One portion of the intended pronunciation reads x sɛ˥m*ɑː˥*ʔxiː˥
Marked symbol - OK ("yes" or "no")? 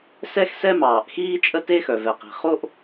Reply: no